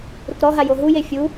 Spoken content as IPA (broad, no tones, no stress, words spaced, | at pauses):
ɾukɾɔɦa joɦuje fʲu